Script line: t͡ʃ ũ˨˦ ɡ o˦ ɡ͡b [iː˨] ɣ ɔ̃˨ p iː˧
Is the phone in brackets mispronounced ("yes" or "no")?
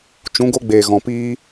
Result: yes